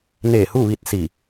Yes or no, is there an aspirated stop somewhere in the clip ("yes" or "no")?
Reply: no